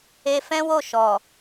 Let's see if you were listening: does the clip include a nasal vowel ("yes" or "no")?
yes